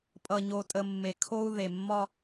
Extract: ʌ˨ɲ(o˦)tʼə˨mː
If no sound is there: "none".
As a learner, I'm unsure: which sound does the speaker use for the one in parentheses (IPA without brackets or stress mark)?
o˨